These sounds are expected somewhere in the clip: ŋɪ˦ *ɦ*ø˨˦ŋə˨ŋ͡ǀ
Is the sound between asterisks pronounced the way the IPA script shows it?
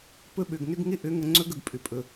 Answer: no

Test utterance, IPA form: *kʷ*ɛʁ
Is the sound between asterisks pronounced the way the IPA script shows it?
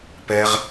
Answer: no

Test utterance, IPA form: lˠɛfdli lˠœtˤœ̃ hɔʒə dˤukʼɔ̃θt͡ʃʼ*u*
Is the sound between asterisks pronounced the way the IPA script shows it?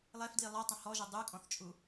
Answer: yes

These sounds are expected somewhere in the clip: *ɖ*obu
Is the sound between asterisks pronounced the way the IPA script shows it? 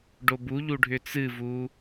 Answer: yes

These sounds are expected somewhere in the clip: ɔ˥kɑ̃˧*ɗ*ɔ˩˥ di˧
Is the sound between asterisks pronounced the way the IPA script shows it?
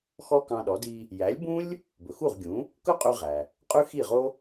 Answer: yes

